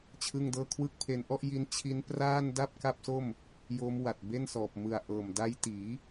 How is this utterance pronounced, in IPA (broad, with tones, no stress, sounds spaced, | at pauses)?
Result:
t͡ɕʰ ɯ˥˩ ŋ d ɤː˥˩ kʰ w ɯ˦˥ k̚ pʰ e˧ n ʔ ɔ˥˩ ʔ j i˦˥ n t͡ɕʰ i˦˥ n p r aː˥˩ n d a˥˩ p̚ k a˥˩ p̚ s o˥˩ m | j o˦˥ m w a˨˩ t̚ b e˥˩ n s ɔː˨˩ p̚ m ɯ˨˩ a̯ ʔ ɤː˨˩ m d a˦˥ j t iː˩˦